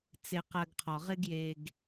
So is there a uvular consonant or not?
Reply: yes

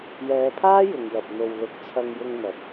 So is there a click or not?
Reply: no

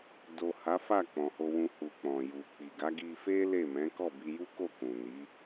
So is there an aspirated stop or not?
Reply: no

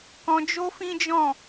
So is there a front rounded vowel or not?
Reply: no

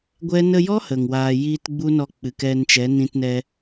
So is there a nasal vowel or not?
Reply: yes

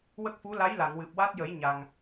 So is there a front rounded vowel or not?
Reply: no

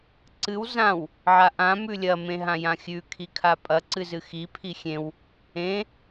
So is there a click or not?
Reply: yes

